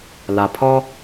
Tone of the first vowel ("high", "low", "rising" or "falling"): low